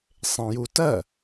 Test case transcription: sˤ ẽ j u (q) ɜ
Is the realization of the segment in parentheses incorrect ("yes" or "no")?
yes